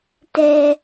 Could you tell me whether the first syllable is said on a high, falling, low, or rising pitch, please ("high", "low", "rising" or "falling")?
high